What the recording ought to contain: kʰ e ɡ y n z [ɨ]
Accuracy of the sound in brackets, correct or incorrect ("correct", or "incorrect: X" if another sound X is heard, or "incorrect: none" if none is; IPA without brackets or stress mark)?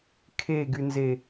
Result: incorrect: e